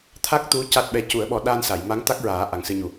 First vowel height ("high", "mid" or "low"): low